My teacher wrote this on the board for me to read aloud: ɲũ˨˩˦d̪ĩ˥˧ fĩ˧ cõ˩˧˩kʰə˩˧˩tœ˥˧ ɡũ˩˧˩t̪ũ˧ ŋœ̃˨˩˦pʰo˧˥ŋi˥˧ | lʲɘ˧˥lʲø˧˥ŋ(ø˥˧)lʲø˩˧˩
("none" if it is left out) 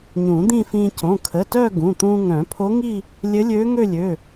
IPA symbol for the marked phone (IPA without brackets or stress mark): ø˥˧